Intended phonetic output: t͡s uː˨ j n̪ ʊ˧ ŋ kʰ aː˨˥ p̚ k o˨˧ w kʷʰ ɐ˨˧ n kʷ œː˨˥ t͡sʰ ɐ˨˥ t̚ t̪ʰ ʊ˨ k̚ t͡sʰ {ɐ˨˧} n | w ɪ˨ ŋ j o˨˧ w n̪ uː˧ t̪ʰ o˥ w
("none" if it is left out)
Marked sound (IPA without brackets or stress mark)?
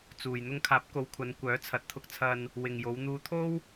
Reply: ɐ˨